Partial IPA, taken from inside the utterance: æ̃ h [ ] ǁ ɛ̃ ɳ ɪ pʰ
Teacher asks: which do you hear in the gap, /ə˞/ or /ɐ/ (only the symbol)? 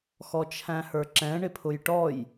ə˞